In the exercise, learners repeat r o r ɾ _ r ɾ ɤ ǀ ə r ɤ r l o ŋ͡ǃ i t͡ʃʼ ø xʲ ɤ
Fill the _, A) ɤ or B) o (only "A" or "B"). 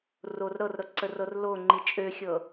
A